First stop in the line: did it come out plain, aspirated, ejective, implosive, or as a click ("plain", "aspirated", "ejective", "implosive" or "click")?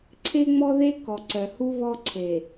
click